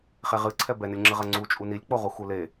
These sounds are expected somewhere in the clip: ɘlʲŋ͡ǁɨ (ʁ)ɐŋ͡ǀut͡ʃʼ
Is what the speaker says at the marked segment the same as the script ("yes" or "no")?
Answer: yes